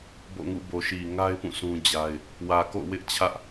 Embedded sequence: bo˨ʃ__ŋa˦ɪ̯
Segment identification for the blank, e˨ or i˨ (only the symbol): i˨